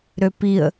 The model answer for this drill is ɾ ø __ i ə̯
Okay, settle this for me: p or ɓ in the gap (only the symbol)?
p